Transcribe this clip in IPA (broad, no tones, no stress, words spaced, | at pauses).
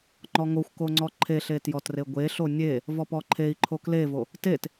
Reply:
ŋ͡ǃɔŋoxʷko ŋ͡ǀɔǃʰeɬe tjɔtreɡʷeɬo nʲe | vɔpɔǃʰei̯ǃʰo klevo | tet